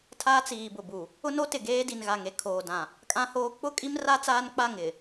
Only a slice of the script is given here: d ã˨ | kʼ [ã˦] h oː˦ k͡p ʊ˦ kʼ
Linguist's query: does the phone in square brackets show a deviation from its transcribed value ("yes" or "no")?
no